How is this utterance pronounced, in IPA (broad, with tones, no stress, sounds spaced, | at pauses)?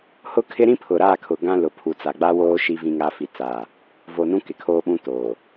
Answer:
h ʊ˦ kʰ ɪ˦ ɾ ĩ˦ pʰ ʊ˨ ɾ aː˦˨ kʰ ʊ˨ ɡ ã˦ l ʊ˨ pʰ u˨ t͡s a˨ ɡ͡b a˦ w oː˦ ʃ i˦ v ĩ˦ ŋ a˦ f i˦ t͡s a˦˨ | v o˨ n ũ˦ k ɪ˨˦ kʰ oː˦ ɓ ũ˦ t oː˨